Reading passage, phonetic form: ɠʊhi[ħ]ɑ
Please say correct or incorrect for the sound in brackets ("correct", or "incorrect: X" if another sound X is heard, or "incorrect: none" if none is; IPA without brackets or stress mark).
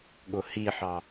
correct